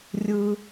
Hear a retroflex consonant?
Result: no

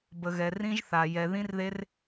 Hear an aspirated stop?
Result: no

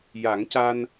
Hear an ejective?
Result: no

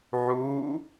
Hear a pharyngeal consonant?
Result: yes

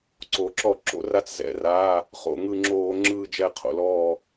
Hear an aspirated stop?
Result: yes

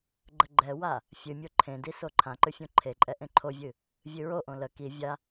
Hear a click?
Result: yes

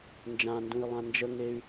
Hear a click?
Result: no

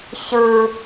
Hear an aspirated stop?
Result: no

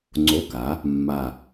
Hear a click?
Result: yes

